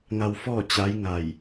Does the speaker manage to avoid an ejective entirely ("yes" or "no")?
yes